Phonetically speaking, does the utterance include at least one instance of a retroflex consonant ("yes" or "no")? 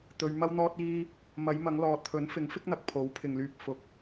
no